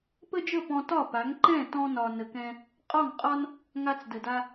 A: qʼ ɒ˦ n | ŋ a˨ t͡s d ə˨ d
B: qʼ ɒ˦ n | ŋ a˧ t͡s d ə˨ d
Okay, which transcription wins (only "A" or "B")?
B